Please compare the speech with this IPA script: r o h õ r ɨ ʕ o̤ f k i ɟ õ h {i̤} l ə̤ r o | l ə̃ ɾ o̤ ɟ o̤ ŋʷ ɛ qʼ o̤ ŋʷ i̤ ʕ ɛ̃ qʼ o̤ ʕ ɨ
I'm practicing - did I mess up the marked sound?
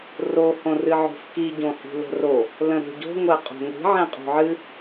no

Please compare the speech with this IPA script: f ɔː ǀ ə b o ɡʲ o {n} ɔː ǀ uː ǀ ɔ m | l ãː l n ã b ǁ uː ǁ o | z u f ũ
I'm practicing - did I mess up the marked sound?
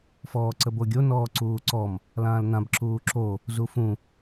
no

